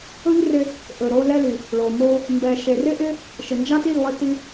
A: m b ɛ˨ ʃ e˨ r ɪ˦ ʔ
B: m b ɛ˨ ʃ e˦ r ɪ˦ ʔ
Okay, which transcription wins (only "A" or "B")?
A